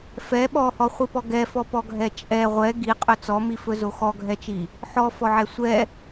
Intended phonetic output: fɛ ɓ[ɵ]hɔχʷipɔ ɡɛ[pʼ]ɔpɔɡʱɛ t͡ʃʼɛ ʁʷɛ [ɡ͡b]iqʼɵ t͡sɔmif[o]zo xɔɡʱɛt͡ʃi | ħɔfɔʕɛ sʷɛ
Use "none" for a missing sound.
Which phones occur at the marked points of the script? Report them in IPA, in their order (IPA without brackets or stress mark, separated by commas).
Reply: ɔ, f, ɡ, ɵ